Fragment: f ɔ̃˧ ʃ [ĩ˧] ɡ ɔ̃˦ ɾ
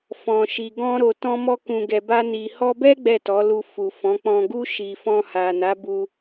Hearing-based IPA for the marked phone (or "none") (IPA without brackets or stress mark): i˧